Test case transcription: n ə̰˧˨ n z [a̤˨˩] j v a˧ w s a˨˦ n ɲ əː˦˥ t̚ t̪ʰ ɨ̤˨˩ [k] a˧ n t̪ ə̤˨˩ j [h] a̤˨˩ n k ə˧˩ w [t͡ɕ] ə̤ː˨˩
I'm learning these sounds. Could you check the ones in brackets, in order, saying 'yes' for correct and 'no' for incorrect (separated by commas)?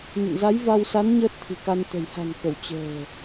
no, yes, yes, yes